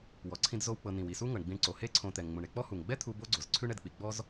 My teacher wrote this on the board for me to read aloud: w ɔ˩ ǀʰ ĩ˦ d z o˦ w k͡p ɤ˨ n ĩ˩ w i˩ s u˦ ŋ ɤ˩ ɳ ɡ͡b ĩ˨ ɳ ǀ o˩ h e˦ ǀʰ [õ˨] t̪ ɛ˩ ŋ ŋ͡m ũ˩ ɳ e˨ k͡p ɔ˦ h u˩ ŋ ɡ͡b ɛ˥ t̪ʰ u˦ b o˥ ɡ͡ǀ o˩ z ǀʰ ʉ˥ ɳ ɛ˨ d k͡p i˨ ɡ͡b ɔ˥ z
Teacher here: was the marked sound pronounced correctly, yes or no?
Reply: yes